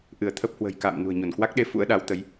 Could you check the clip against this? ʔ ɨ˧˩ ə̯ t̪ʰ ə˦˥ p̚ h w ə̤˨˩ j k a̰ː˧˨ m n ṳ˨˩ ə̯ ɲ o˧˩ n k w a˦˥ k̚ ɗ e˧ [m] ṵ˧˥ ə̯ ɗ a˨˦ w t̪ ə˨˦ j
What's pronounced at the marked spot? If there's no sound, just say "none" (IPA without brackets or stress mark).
f